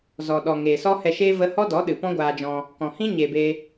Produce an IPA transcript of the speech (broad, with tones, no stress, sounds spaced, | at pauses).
z ɔ˨ ɗ ɔ˨ ŋ eː˨ s ɔ˦ h ɛ˧ ʃ eː˦ v ə˧ h ɔ˦ d ɔ˨˦ ɗ ɨ˨ p ɔ̃˦ ɡʷ aː˧ d͡ʒ ɔ̃˧ | k ɔ̃˨ h ĩ˦ ɲ e˨ b eː˧